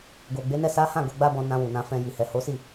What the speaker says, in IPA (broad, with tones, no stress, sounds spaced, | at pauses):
ɡ o˨ ɡ͡b e˨˦ n ɛ˦˨ s a˨˦ h ã˦˨ ɡ o˧ ɡ͡b a˦ b ɔ̃˧ n ã˧ w u˨ n ã˧ f ɛ̃˧ j i˨ h ɛ˨ h o˨˦ s i˦˨